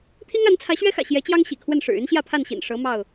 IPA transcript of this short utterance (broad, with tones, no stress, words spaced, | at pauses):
t̪ʰi˦ŋa˨˦n t͡sʰä˨˦ɕɥɛ˦xä̰˨˩ ɕjɛ˨˦t͡ɕjɑ˦ŋ ɕḭ˨˩kʰwə˥˨nʂɻ̩˨˩ y˦nɕjä˥˨pʰa˥˨nɕḭ˨˩n ʂɤ˨˦ mɑ˥˨ʊ̯